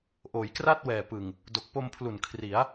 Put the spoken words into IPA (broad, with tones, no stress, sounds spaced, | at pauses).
ʔ oː˩˦ j k r a˥˩ t̚ w ɛː˨˩ p ɯ˨˩ ŋ | d o˨˩ k̚ p o˧ m pʰ l u˨˩ n kʰ r i˩˦ a̯